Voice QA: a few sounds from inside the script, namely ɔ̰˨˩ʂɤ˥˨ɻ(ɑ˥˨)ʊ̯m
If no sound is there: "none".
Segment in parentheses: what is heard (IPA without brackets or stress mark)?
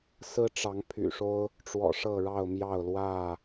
ɑ˥˨